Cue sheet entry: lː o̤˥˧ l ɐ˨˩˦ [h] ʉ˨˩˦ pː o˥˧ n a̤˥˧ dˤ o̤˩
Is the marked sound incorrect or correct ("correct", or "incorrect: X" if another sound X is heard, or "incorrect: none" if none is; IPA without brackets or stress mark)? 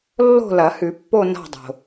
correct